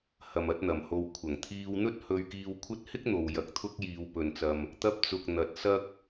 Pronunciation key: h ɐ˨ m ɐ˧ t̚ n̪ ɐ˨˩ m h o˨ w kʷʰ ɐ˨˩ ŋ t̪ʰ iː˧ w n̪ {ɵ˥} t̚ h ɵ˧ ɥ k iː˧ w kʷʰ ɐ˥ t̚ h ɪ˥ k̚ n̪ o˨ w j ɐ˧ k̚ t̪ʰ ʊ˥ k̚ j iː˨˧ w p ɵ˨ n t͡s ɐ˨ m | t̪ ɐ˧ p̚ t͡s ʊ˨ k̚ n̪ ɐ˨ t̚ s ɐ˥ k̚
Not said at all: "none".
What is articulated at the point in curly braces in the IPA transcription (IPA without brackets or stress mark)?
ɵ˥